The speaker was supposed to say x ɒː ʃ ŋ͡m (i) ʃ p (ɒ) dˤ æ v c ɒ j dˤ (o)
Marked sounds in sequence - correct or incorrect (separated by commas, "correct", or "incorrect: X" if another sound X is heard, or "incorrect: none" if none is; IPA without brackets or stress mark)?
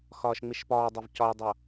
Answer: correct, incorrect: ɒː, correct